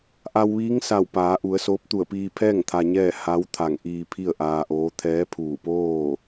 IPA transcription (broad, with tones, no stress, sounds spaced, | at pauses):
ʔ a˧ w ʋ iː˧˥ ŋ s a˧˩ w p aː˩˧ ʔ u˩˧ ə̯ s oː˧˥ p̚ t̪ u˧˩ ə̯ p iː˧ pʰ ɛː˥˨ ŋ t̪ʰ a˧ ɲ ɛː˥˨ h a˧˥ w t̪ʰ a˧˩ ŋ ʔ iː˧ pʰ i˥˨ ə̯ ʔ aː˧ ʔ oː˧˥ t̪ʰ ɛː˧˥ pʰ uː˧˩ p oː˥˨